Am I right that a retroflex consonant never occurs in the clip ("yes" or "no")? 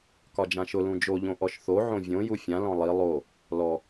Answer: yes